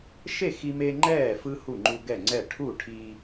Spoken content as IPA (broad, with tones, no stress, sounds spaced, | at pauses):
ʃ e˥˨ x i˦ m e˦ ŋ͡ǃ ɛː˥˨ f ɯ˦ h u˥˨ ŋ͡ǃ u˦ ɡ ɛ˥˨ ŋ͡ǀ ɛ˥˨ ʈʰ u˥˨ ʈʰ i˦